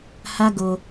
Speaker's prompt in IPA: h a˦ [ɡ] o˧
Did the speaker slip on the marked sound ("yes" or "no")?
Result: no